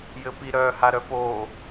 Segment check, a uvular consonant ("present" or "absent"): absent